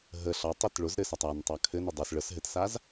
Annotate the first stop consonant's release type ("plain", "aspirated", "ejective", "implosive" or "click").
plain